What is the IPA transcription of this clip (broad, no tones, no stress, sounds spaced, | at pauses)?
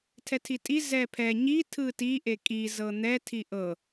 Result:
tʰ ɛ tʰ i tʼ i z ɛ pʰ ɛ ɲ i tʰ ɯ t i ʔ e kʼ i z ɤ n̪ ɛ tʰ i ʔ ɤ